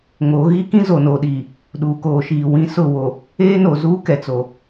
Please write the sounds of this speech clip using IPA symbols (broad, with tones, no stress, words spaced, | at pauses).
ŋo˨˦ɣi˦ kĩ˦zo˨noː˨ɗiː˨ | ɗuː˨koː˨ʃiː˨ wĩ˦ sʊ˦˨wo˨ | eː˦no˨zuː˦ kɛ˨t͡so˨